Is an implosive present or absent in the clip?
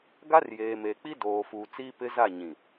absent